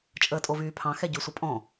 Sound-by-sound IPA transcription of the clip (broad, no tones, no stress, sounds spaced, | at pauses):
t͡ʃʼ əː tʼ o v yː pʰ ɑ̃ x ɛ ɟ y sʷ ɐ pʼ ɔ̃